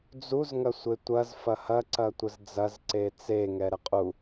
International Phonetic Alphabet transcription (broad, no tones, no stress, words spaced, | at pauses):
d͡zuz ŋɐsʷetʷɐz fɐhɐ ǀɐtʷəzd͡zɐz ǀet͡se ŋɛɾɛqʼu